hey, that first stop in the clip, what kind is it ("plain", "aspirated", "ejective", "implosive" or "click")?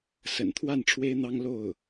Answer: aspirated